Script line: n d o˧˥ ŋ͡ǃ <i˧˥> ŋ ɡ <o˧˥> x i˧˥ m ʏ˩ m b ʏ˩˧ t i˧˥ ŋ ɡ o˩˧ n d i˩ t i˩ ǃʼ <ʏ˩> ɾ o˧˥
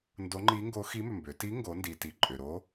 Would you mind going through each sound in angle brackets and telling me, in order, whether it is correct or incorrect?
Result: correct, correct, correct

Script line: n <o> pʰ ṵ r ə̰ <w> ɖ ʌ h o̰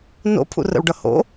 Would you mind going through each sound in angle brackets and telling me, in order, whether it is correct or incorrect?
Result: incorrect, correct

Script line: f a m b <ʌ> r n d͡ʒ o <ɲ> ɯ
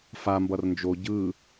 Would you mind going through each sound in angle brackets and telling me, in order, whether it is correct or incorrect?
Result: correct, incorrect

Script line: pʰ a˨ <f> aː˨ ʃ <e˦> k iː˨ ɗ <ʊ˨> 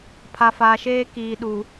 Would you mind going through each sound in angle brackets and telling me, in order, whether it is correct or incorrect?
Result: correct, incorrect, incorrect

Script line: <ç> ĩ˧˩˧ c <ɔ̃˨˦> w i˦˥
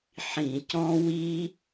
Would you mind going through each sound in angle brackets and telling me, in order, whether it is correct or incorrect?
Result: incorrect, incorrect

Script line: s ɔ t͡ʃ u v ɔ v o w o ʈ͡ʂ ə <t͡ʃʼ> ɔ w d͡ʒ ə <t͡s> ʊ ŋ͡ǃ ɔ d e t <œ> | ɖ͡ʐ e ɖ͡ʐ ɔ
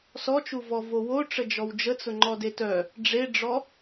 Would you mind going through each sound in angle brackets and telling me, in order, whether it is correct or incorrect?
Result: incorrect, correct, correct

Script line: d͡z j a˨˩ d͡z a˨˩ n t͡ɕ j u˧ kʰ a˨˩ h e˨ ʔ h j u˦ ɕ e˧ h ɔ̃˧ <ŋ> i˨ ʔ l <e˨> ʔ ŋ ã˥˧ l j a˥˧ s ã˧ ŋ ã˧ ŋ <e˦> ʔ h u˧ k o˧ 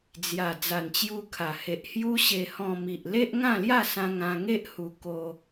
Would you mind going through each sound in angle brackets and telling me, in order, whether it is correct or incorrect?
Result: incorrect, incorrect, correct

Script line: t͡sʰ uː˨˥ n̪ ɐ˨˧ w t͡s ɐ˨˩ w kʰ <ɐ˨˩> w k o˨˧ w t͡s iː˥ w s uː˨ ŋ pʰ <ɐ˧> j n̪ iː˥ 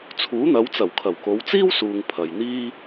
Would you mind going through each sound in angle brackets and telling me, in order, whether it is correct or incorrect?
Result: correct, incorrect

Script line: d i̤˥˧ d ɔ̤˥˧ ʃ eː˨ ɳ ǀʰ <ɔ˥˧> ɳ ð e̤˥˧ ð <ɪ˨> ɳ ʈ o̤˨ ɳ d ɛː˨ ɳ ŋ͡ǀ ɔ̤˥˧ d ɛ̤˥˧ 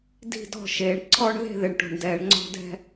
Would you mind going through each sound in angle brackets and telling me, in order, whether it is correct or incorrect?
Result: correct, correct

